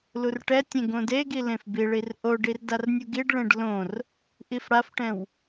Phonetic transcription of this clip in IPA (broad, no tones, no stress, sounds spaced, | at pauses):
l u r ʈ ɛ tʲ ẽ ɡ õ d e ɡ i l ẽ f b i ɭ i r ʔ o ɖ i r d a r nʲ u ɡ i ɖ ɭ ẽ ɖ l õ r | ʔ i f ɽ a f ʈ ɛ̃ w